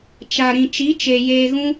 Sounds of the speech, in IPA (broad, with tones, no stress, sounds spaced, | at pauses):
t͡ʃ a˨ ɾ ĩ˨ t͡ʃ i˨˦ t͡ʃ e˨ j eː˧ ɣ ũ˦